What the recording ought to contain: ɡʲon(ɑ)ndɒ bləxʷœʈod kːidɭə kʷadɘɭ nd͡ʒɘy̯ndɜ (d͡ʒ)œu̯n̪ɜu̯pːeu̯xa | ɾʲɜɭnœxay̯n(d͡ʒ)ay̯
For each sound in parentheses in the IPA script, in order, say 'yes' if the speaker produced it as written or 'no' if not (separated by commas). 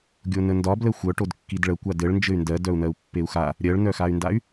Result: no, no, no